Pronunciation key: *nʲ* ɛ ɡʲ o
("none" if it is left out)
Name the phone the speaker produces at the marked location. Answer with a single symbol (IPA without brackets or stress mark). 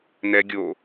n